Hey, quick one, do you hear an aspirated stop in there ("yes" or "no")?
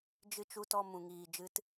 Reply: no